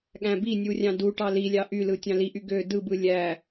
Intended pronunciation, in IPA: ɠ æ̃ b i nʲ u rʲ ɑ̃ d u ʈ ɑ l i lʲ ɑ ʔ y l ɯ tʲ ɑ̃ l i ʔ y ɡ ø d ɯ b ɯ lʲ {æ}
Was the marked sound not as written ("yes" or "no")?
no